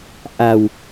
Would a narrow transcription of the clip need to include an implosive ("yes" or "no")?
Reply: no